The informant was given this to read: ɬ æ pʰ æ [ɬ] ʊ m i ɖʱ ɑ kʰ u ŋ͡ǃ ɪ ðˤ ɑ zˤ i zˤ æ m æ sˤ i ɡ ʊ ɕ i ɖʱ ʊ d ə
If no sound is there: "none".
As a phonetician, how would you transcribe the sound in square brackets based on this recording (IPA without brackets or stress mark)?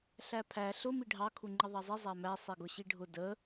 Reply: ɬ